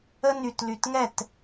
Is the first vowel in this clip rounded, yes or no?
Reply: no